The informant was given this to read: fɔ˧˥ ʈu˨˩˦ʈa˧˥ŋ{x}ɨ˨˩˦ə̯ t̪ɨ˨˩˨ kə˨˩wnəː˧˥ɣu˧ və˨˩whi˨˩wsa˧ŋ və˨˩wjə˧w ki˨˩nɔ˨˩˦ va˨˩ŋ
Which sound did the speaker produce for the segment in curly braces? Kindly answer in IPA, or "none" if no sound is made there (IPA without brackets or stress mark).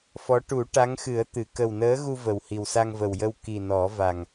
x